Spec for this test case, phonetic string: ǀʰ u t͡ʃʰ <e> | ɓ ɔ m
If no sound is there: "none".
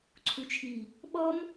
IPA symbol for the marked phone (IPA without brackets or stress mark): i